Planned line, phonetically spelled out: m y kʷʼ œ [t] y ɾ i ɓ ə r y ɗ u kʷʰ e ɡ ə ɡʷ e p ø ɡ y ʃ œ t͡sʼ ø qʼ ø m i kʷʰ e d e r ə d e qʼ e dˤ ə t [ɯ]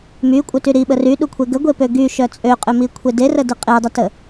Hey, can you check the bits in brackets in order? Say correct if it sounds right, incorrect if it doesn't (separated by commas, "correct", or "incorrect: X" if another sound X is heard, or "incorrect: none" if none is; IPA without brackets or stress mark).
correct, incorrect: ə